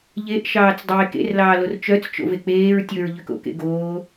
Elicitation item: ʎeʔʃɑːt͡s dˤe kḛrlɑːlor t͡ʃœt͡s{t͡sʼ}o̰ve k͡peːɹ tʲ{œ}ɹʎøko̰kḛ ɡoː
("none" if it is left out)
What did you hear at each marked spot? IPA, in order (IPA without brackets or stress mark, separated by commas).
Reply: t͡ʃ, ɵ